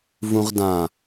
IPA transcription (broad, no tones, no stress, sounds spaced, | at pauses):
v ũ ʁ d ã